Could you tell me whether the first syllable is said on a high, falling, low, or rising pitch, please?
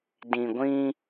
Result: low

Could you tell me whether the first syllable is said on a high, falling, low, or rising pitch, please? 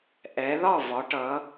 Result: rising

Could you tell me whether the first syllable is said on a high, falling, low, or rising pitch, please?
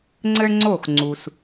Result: high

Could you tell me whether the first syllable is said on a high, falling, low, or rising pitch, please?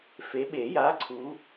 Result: rising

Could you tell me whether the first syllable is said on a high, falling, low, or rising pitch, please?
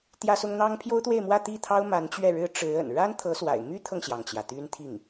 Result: high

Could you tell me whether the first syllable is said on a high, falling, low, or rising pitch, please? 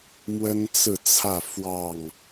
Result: high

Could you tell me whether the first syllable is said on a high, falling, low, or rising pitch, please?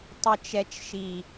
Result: low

